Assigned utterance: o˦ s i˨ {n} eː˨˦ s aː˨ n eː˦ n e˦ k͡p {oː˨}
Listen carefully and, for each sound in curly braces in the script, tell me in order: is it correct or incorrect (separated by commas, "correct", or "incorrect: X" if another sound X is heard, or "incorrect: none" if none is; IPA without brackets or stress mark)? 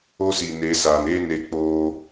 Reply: correct, incorrect: oː˦